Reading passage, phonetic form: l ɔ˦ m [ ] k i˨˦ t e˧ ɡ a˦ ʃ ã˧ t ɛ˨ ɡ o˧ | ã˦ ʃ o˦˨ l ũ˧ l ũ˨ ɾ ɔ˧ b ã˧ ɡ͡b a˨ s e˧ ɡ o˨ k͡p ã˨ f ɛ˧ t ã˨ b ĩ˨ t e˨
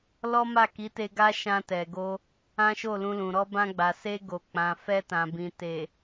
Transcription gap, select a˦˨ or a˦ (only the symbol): a˦˨